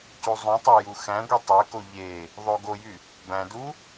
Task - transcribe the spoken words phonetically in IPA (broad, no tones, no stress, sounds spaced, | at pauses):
c u zˤ ũ tˤ æ j u x æ̃ ɡʷ i tˤ ø k o ʎ e | ðˤ o ɡ o j y | b æ̃ d u